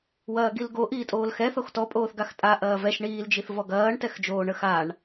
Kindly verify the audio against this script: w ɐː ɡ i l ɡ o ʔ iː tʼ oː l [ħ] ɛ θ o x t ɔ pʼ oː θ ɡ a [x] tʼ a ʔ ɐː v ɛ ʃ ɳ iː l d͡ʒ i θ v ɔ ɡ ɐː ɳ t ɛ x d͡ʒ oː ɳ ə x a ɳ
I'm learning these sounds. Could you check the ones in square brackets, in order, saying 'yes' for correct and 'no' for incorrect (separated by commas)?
no, yes